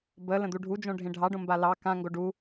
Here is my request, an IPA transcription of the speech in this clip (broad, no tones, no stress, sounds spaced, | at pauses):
b ə l ə̃ d̪ u ɖʱ u d͡ʒ õ ɖʱ ẽ ɖʱ ɑ ɖ õ m b a l ɑ k ã ŋ ɡ o ɖ u